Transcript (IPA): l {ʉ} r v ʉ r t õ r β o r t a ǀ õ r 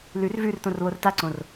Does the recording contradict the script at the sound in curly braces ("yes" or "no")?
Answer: no